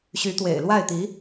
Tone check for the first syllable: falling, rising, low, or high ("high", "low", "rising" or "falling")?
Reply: rising